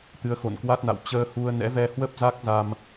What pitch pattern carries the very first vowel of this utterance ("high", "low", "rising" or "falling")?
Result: rising